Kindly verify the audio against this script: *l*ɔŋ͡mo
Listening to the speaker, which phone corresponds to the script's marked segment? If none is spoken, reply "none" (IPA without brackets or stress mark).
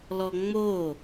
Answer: l